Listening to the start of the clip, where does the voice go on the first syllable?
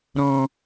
low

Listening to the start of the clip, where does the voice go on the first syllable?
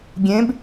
rising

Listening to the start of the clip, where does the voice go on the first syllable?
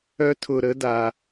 high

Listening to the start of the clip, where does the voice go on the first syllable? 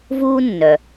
high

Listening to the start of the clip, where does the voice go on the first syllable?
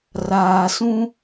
low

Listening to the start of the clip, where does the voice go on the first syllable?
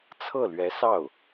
falling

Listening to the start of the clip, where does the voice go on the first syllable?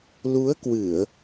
rising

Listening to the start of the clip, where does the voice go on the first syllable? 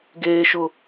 high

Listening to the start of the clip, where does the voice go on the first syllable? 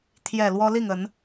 low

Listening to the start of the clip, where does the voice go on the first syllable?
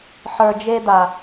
low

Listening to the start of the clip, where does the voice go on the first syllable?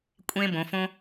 high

